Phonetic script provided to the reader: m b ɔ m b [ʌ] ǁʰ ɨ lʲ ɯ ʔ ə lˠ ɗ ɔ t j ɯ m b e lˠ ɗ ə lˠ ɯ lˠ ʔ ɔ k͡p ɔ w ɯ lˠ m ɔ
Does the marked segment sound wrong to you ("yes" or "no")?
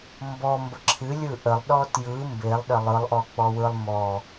yes